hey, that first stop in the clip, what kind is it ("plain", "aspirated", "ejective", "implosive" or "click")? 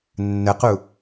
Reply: plain